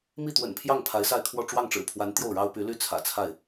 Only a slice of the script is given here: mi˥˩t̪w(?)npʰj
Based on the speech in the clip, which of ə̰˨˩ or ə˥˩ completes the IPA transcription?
ə̰˨˩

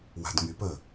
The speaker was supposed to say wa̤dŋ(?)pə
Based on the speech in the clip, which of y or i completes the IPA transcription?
y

